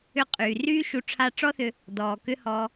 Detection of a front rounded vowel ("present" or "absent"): present